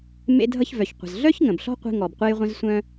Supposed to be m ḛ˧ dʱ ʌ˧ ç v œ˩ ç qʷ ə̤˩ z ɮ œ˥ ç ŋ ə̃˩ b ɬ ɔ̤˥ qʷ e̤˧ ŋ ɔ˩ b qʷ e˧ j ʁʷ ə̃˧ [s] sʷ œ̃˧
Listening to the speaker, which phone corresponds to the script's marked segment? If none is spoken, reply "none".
z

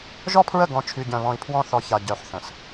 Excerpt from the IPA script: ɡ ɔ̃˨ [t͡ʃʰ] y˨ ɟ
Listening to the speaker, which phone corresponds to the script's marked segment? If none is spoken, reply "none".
t͡ʃʰ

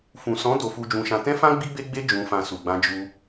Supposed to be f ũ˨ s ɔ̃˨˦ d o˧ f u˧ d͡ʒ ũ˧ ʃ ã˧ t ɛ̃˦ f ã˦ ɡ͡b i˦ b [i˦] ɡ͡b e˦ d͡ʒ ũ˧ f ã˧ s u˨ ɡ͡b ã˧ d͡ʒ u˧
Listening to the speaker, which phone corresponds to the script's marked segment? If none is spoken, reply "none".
e˦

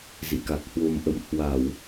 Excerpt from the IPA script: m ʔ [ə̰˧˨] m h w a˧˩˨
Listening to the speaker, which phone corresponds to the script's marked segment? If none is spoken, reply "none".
ə̰˧˨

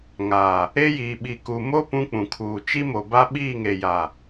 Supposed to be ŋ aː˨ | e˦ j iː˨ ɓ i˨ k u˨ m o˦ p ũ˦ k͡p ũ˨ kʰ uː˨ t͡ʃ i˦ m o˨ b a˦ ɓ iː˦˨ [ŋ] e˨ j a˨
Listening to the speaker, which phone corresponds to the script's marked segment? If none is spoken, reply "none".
ŋ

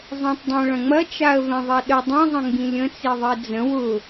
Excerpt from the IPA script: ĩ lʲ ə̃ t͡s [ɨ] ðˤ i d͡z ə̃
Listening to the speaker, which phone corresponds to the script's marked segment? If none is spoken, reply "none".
i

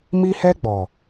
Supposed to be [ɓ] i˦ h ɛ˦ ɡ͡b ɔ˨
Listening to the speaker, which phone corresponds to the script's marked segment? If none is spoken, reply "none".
m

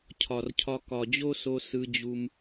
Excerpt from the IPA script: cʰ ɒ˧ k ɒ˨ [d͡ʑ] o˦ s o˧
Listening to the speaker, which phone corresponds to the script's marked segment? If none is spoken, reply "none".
d͡ʑ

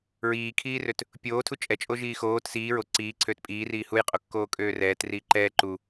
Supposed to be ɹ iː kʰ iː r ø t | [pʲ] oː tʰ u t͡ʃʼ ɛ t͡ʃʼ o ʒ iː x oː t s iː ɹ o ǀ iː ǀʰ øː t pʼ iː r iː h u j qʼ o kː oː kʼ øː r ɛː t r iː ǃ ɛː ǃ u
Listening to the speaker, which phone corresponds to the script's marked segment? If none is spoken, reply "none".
pʲ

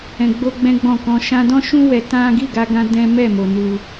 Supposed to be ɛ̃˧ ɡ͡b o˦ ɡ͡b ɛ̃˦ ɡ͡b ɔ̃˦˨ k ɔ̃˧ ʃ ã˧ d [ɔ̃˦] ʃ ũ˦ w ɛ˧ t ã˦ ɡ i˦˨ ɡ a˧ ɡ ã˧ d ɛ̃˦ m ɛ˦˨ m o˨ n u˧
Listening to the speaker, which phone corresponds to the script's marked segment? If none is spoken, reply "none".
ɔ̃˦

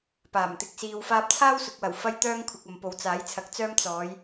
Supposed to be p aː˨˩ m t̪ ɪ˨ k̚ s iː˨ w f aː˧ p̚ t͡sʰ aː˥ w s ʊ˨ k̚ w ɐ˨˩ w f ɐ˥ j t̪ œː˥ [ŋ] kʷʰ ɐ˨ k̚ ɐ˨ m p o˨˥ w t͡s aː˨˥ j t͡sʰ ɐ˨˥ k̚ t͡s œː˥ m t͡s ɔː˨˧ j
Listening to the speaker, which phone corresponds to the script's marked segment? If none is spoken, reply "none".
ŋ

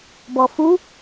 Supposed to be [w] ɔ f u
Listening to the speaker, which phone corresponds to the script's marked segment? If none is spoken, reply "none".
b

